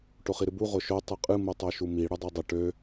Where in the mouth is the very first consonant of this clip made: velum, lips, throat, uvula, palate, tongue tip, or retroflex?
retroflex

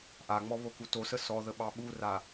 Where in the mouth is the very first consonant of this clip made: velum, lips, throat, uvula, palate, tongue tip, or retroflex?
throat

